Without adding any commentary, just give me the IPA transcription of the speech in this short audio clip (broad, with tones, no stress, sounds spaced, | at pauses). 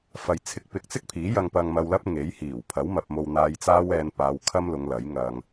f ɐ˧ j t͡sʰ ɪ˧ k̚ p ɪ˨ k̚ t͡s ɪ˥ k̚ pʰ iː˨˥ j ɐ˧ ŋ p ɐ˧ ŋ m ɐ˧ w l ɐ˥ p̚ ŋ e˨˥ j h iː˨˩ w pʰ ɐ˨˥ w m ɐ˨ p̚ m o˨ w n̪ aː˧ j t͡s aː˥ w ɛː˧ n p aː˨˧ w kʰ ɐ˥ m l ʊ˨˧ ŋ l ɐ˨˥ j ŋ ɐ˧ ŋ